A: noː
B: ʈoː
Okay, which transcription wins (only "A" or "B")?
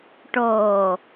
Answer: B